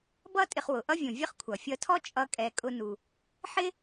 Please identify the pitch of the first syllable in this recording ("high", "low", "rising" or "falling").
high